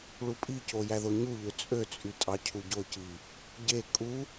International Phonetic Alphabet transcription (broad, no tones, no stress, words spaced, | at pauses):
ɭupʼico jæðoɲuʎø t͡sʼøt͡sʼy tʼɑcʰuɟoci | ɟe kʼu